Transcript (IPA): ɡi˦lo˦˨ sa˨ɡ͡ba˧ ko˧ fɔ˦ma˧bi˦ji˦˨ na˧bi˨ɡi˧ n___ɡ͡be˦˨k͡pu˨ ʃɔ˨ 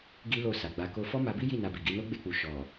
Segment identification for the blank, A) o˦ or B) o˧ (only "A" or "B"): A